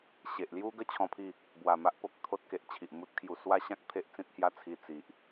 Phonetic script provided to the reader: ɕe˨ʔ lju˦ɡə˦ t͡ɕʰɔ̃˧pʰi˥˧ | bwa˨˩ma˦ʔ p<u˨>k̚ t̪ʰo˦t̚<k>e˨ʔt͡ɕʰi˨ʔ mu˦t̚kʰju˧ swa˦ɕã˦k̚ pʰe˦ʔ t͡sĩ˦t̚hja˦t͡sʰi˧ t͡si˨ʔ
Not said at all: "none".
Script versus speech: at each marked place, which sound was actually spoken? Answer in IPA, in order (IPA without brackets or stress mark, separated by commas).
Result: o˨, k